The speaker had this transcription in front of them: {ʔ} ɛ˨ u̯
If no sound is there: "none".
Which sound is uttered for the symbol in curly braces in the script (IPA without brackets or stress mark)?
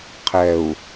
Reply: qʰ